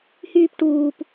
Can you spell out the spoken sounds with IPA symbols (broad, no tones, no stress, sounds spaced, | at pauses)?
h yː p ʈ uː p